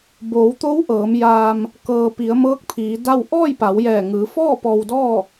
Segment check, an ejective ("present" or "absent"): absent